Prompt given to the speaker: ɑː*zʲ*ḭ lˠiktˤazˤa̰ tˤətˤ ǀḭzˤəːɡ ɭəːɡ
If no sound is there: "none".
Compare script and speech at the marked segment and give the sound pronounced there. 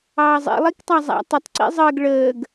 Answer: zˤ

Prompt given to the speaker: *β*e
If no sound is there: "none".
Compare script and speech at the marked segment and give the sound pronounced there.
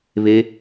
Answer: β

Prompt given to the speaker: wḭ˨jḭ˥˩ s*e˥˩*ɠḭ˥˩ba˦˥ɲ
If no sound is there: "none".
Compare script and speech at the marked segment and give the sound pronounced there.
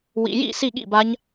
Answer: i˥˩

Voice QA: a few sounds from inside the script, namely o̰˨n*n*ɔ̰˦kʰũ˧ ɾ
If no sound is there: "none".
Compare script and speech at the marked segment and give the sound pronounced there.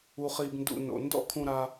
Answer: d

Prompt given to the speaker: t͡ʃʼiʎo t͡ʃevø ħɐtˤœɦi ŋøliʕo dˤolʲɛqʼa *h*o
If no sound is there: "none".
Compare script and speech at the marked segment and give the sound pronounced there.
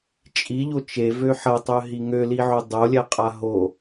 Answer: ɦ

